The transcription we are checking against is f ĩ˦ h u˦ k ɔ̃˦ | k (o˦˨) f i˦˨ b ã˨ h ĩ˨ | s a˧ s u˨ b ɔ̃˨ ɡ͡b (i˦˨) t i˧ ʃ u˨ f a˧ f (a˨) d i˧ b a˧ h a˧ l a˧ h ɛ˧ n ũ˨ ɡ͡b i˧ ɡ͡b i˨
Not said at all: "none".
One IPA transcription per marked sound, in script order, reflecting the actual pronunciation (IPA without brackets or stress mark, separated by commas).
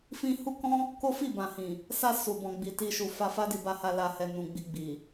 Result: o˦, i˨, a˦